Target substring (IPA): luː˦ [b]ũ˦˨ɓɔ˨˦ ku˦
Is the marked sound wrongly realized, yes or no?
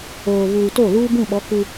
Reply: no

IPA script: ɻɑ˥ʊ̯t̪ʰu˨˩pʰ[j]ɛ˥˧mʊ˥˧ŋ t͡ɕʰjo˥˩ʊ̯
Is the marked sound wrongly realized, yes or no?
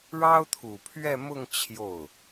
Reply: yes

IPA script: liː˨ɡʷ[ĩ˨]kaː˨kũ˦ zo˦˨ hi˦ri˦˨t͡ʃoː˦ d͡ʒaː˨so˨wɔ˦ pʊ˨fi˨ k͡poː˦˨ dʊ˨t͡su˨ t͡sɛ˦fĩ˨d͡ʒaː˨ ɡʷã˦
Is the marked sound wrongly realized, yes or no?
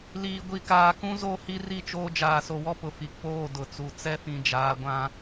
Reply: yes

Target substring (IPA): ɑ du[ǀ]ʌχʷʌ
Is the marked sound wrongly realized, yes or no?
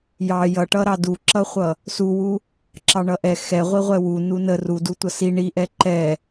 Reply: yes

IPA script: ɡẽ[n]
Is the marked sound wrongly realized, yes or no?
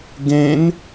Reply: no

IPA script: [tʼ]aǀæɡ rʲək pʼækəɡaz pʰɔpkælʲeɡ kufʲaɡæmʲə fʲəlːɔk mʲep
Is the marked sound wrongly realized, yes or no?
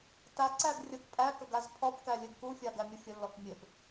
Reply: yes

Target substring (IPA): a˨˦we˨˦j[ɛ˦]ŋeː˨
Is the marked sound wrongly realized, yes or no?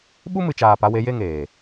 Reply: yes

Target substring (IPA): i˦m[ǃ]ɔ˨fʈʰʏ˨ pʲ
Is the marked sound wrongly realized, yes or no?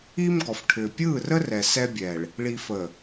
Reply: yes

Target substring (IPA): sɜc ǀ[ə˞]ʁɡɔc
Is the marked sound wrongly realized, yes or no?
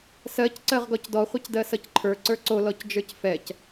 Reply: yes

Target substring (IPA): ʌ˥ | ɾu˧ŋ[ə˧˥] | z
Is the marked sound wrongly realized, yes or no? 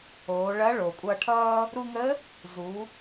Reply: no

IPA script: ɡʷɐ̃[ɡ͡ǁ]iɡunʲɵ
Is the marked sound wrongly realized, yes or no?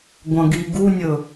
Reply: yes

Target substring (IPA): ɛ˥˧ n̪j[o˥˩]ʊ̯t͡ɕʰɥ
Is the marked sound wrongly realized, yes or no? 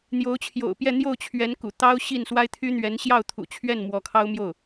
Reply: no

